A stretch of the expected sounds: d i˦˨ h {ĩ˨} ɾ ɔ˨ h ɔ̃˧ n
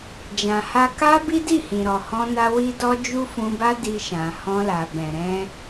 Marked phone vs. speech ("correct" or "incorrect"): correct